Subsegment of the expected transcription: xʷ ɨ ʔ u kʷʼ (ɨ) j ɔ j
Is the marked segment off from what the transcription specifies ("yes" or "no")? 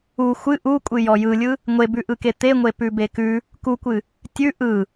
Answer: no